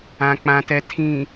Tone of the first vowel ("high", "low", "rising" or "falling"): low